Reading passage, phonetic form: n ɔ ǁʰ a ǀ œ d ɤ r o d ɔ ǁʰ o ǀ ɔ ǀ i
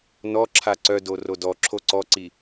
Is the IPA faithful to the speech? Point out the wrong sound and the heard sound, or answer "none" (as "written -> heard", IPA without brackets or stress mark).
ɤ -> o